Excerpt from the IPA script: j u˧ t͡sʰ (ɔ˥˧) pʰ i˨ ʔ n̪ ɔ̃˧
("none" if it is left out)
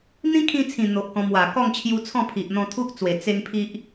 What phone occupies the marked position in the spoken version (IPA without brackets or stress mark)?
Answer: ɔ̃˥˧